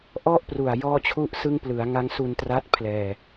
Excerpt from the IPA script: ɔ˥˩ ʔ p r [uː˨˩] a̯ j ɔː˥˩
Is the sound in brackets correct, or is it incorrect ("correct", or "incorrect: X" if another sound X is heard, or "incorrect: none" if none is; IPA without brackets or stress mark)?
incorrect: u˨˩